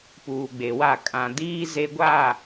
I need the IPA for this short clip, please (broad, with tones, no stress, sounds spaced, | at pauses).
p uː˨ ɡ͡b e˨ w a˦˨ kʼ ã˨ d iː˦ z e˦ ɡʷ a˦˨